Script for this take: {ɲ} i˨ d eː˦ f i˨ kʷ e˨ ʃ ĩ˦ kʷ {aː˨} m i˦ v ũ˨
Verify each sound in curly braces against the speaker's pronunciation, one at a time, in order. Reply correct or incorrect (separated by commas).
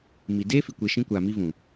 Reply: incorrect, correct